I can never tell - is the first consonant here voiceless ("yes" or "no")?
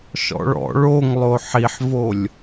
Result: yes